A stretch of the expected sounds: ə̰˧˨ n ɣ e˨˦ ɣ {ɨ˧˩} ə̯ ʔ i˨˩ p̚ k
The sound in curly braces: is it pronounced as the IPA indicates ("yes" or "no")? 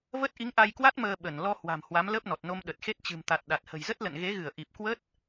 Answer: yes